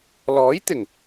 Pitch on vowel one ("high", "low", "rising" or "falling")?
rising